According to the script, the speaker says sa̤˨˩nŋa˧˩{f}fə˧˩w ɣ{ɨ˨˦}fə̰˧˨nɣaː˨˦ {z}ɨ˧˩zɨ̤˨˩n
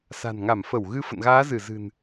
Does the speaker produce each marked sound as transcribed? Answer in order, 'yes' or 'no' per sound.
no, yes, yes

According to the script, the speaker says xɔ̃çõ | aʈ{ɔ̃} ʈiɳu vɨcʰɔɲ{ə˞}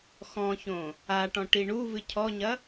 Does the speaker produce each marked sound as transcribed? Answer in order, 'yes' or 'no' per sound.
yes, no

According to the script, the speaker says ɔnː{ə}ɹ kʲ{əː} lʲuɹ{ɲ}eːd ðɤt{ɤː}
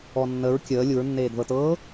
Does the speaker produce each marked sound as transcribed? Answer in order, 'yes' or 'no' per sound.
yes, yes, no, yes

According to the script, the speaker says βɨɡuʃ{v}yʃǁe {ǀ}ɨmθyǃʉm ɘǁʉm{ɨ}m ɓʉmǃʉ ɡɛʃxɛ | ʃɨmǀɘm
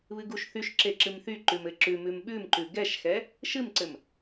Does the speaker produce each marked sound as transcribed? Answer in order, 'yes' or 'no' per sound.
no, no, no

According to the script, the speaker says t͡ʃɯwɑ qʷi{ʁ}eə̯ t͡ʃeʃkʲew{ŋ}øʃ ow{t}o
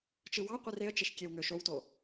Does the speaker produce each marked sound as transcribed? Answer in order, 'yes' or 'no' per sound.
no, yes, yes

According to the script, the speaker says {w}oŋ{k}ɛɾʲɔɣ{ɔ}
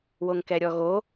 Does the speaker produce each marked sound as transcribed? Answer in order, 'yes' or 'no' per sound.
yes, yes, no

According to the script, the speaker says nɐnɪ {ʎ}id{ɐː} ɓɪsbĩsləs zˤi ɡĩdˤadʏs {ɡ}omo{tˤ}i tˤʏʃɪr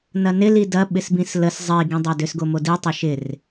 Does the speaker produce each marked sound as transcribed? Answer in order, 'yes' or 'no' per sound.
no, no, yes, no

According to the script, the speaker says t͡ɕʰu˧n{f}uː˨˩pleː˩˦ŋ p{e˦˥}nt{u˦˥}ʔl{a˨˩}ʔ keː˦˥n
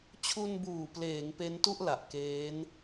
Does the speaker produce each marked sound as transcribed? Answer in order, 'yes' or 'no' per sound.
no, yes, no, yes

